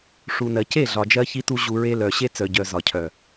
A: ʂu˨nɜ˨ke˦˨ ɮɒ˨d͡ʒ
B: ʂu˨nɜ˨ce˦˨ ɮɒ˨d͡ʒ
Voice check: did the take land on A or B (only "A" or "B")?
B